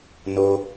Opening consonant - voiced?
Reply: yes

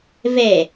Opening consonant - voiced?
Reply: yes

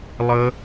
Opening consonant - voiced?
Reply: yes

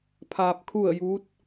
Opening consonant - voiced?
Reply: no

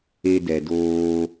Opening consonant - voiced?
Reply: yes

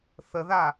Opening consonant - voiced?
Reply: no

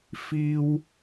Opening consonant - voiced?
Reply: no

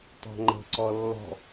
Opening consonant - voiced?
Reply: no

